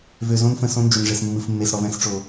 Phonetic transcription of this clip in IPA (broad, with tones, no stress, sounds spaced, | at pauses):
v ø˨ z õ˦ n f ə̃˨ s õ˦ n d͡ʒ ʏ˨ n ʐ e˨ s mː ɯ˨ f mː e˨ s ɽ ɔ˨ v ɛ̃˦ s ʈ͡ʂ o˨